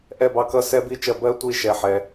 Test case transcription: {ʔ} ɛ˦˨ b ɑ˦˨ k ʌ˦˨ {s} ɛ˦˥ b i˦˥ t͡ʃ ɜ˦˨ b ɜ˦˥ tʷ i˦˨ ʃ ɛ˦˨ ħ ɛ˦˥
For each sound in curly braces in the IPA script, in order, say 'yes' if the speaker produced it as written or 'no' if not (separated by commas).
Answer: yes, yes